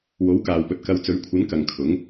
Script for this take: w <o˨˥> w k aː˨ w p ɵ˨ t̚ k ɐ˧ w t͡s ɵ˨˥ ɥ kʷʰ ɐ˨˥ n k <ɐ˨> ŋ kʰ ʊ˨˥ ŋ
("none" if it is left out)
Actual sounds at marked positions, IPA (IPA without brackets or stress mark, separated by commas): o˨˥, ɐ˨